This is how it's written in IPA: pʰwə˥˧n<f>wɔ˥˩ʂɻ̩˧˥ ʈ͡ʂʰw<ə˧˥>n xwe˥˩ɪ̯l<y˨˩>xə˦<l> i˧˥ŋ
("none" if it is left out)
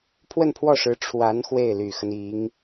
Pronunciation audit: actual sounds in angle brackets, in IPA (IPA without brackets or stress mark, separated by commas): pʰ, a˧˥, y˨˩, n